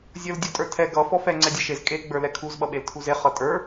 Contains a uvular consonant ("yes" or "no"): yes